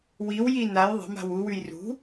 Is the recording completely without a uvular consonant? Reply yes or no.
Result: yes